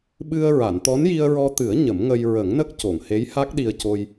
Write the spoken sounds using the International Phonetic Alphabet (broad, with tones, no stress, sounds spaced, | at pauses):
ɓ ɨ˧ ə̯ ɹ a˨˩˨ n t̪ ɔ˧˥ n j i˧ ə̯ ɹ ɔ˧ t̪ ɨ˨˩˦ ə̯ ɲ ə˨˩˦ m ŋ ə˧ j ɹ ə˨˩˦ ŋ n ə˦˥ k̚ c o˨˩˨ ŋ h e˧˥ j h a˦˥ k̚ ɗ i˧ ə̯ c o˧ j